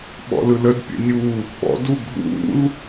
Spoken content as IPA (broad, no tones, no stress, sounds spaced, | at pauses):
ɓ ɔ̰ l ɯ l ə d pʲ ə̰ nʲ u | ɓ ɔ̰ d u ɡʱ ṵ l